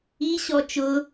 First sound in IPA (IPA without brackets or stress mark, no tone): i